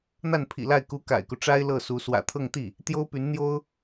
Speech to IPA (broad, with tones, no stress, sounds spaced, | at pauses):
n̪ a˥˩ n pʰ ḭ˨˩ l a˥˩ ɪ̯ k u˧˥ k a̰˨˩ ɪ̯ k u˦ ʈ͡ʂ a˥ ɪ̯ l ɤ˥˩ s u˧˥ s w ä̰˨˩ t̪ʰ ɤ˥˧ ŋ t̪ i˥˩ | t̪ j o˥ ʊ̯ p y˧˥ n n̪ j o˥ ʊ̯